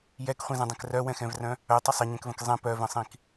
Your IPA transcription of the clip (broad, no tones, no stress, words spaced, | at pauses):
jɛkχʷĩzə̃dˤɛ̃k rœwɛ̃xɛ̃vrœ̃ | œtˤə sˤɪɲɛ̃kvə̃k zˤɛ̃ pœvə̃sˤĩk